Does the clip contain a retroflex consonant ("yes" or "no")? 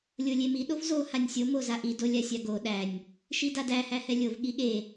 no